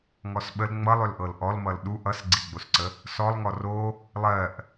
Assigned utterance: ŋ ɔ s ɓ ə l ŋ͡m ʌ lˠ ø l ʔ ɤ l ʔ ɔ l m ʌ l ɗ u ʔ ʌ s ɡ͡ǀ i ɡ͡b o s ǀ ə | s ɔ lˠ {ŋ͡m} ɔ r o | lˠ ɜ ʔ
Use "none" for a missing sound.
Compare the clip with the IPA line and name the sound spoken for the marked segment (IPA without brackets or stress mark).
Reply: ŋ